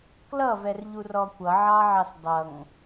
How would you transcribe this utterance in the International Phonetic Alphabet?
k l ʌ v ɛ r ʎ u r ɔ kʷ ʌ ʕ ɑ ʕ ɑ s dˤ ʌ ŋ

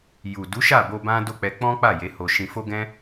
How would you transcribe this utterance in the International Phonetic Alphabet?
j u˨ d u˨˦ ʃ a˦˨ b o˧ b ã˦ d o˦˨ k͡p ɛ˧ k͡p ɔ̃˦ k͡p a˦˨ j e˨˦ h o˧ ʃ ĩ˧ f o˦ ɡ ɛ̃˦

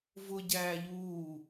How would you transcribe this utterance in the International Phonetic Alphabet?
v ʊ ɟ æː ʎ uː

